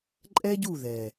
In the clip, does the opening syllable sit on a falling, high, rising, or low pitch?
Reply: high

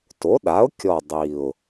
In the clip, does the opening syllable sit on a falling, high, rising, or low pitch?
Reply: rising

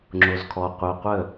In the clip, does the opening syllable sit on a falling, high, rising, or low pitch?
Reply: low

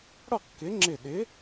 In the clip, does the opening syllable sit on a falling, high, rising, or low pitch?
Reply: falling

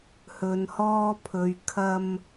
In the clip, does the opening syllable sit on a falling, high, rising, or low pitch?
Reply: low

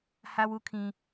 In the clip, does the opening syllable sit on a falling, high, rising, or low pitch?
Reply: high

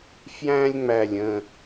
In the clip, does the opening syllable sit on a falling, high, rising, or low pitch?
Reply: high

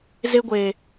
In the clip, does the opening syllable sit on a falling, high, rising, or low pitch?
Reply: high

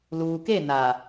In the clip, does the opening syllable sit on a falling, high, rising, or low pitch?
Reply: low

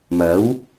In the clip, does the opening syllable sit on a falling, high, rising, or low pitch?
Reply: rising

